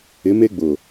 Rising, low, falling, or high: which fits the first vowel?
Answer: rising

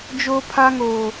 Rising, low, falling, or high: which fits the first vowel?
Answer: high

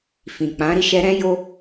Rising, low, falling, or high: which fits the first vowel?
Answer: low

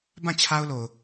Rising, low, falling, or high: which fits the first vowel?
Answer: falling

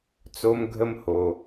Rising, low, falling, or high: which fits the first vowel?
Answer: high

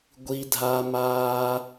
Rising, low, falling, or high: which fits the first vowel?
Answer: high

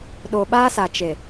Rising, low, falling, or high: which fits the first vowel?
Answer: low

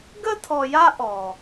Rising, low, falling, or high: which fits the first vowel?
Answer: high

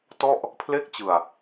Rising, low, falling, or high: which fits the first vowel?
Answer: falling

